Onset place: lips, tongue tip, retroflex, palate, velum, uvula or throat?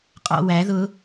uvula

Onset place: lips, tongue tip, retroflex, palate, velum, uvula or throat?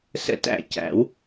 tongue tip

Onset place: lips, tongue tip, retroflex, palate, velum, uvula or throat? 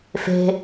lips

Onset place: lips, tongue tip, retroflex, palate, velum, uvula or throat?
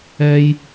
palate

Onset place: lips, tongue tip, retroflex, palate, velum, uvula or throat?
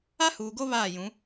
throat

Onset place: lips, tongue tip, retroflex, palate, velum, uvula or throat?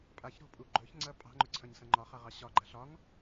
lips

